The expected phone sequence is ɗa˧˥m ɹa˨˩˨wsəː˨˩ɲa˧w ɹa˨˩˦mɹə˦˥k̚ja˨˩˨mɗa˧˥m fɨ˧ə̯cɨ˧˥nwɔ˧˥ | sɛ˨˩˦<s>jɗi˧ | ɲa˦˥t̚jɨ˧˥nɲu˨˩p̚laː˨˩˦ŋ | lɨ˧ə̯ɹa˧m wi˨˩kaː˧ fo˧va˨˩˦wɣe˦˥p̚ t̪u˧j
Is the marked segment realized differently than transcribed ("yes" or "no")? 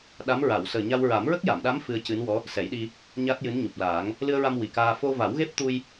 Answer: yes